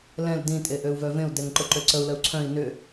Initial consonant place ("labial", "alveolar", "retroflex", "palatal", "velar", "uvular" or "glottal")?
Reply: alveolar